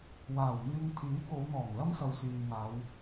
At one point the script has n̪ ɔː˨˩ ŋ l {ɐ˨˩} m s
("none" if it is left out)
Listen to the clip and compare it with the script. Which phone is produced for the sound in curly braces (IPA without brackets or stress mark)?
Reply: ɐ˥